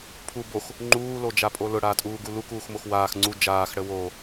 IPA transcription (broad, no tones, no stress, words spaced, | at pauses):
pʰu box | ŋ͡ǃuːlod͡ʒapʼo lʊɽaːtʼuːɡu lukuːxmox waːx ŋ͡ǀu d͡ʒaːxɽə wo